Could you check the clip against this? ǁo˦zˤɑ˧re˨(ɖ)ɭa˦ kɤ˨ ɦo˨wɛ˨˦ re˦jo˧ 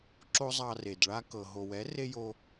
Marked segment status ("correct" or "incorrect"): incorrect